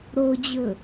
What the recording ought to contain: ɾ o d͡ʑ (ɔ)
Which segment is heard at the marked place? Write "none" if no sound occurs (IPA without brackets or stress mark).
ɵ